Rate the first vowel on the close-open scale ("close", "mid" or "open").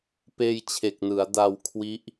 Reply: mid